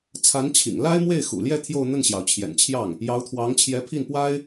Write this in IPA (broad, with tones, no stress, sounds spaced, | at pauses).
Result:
t͡sʰ a˧˥ n t͡ɕʰ ḭ˨˩ ŋ l a˥ ɪ̯ m w e˥˩ ɪ̯ x ṵ˨˩ l j ɛ˥˧ t̪ʰ j o˥˧ ʊ̯ n̪ ə˥˩ n ɕ j ɑ˩ ʊ̯ t͡ɕʰ j ɛ̰˨˩ n t͡ɕʰ j ɑ˥˩ ŋ | j ɑ˧˥ ʊ̯ t̪ʰ w ɑ˧˥ ŋ t͡ɕʰ j ɛ˧˥ pʰ i˥˩ n p w a˥ ɪ̯